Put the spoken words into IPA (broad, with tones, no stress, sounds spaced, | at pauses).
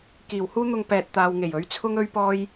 k iː˨˩ w h uː˥ n̪ ʊ˧ ŋ p ɛː˨ t̚ t̪ aː˨ w ŋ e˨˩ j ɵ˨˥ ɥ t͡sʰ ʊ˥ ŋ ɵ˥ ɥ p ɔː˥ j